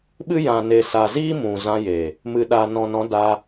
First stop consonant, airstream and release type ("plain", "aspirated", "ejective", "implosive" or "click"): implosive